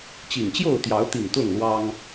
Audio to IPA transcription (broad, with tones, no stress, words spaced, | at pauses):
t͡ɕi˨˩ŋt͡ɕjo˥˨ʊ̯t̪jɑ˨˦ʊ̯t̪i˨˩ŋ t̪ʊ˥˨ŋlwɑ˦ŋ